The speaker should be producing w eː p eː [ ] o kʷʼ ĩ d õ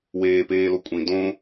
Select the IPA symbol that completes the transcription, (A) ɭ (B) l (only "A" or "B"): B